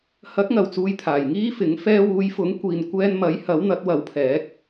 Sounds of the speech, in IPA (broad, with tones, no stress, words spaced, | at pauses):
hɐ˨˥k̚ŋɐ˨˩w t͡suː˧jt̪ʰaː˨˩jŋiː˥fɪ˨˥ŋ fɛː˧wuː˨˧j fʊ˨˥ŋkʷiː˨nkʷɛː˧nmɐ˨˥j hɐ˨˥wn̪ɐ˨˥t̚ wɐ˨˥wpʰɛː˨˥k̚